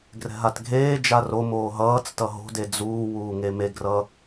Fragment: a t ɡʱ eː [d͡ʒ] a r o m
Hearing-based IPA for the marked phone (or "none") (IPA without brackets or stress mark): d͡ʒ